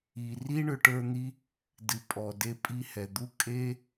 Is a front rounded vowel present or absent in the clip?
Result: present